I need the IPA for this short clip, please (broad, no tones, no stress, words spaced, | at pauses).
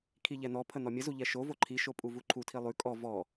kʰiʎɛn̪ɔpʰə n̪ɔmʲəzu ʎɛʃovo ǃʰiʃo pʼuvuǃʰutʰi lˠʉ kʼɔ vɔ